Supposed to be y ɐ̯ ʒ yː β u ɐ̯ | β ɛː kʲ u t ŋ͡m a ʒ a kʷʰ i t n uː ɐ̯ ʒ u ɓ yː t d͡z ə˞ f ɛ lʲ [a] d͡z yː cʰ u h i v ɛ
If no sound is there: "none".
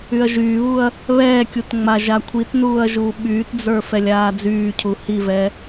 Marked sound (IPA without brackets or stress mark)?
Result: aː